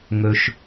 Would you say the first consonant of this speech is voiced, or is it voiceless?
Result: voiced